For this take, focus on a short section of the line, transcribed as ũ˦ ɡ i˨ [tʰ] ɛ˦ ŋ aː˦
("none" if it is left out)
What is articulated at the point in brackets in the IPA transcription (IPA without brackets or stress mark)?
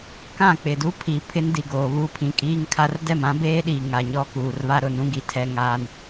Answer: tʰ